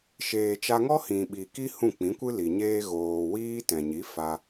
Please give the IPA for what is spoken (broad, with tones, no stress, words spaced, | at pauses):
ʃeː˨t͡ʃa˧ŋɔ˦ hĩ˨ ɓi˨ki˦ hũ˦˨k͡pĩ˨˦kʷɨ˦li˨ ɲeː˧ ɣoː˨ wiː˦ tɛ̃˨ɲi˨˦ fa˧